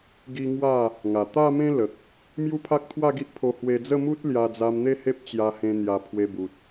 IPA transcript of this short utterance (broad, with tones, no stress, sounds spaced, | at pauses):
ɡ i˦ ŋ w a˥˧ | ŋ a˨˩ t̪ a˥˧ m ẽ˦ l ə˨ k̚ | m j u˦ pʰ a˦ k̚ t̪ʰ w a˥˧ ɡ i˦ ʔ pʰ o˧ h w e˧ d͡z ə˥˧ m u˦ t̚ l j a˧ d͡z a˧ m n̪ e˥˧ h e˦ p̚ t͡ɕ j a˧ h ẽ˧ n̪ j a˨˩ pʰ w e˧ b u˨ t̚